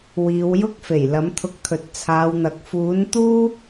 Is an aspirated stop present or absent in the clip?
present